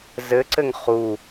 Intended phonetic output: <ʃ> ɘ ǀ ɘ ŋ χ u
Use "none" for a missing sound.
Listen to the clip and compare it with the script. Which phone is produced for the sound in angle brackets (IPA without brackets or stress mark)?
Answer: z